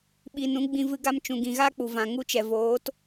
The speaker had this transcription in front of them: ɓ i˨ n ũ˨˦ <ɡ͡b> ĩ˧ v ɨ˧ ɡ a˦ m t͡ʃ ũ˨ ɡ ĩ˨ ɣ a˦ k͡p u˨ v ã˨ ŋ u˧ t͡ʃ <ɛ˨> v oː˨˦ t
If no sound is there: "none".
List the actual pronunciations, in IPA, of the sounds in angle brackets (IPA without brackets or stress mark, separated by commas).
ɡ͡b, ɛ˨